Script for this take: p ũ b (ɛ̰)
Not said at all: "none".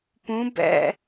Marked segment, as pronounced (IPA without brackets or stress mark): ɛ̰